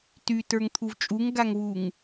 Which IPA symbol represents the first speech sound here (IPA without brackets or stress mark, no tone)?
t